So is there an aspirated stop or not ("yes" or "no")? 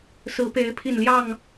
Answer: yes